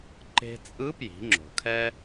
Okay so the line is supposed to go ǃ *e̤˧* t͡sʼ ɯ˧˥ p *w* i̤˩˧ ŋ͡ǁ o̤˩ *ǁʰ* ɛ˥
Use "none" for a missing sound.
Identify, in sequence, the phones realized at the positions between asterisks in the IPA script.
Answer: e̤˧, j, kʰ

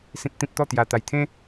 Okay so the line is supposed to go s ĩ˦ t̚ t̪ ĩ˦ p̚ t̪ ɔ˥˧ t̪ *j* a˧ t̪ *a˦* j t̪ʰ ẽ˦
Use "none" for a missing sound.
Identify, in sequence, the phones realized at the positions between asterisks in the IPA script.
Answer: j, a˧

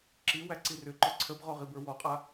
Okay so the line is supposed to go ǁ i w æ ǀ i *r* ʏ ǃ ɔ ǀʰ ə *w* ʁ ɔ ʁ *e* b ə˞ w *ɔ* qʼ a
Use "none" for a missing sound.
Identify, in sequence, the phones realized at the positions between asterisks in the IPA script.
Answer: r, b, i, ɔ

